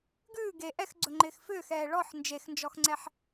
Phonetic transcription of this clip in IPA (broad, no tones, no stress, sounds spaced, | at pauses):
ɡ ʉː ɡ e ʔ ɛ x ɡ͡ǀ ɵ ŋ͡ǃ ɪː x f ʏː x ɛː ɭ ɔ ħ n d͡ʒ e x n d͡ʒ ɔ x ŋ͡ǀ ɛ ħ